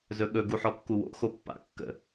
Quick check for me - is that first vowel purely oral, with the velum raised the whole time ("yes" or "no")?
yes